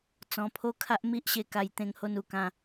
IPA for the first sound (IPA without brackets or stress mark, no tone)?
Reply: t͡s